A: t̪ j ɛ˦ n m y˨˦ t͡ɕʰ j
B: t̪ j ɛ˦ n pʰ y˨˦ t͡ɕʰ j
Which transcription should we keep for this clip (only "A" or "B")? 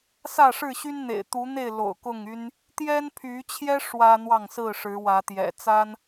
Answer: B